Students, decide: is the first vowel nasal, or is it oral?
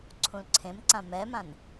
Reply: nasal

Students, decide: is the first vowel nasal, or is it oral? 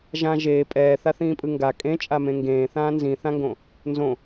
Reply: nasal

